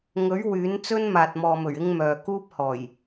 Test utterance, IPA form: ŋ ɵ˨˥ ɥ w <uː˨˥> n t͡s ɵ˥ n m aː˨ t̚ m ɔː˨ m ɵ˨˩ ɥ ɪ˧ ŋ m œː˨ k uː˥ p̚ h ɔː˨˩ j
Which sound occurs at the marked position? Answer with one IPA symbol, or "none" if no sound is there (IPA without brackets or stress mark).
yː˨˥